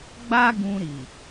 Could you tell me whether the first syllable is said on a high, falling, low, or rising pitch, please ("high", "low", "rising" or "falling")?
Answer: high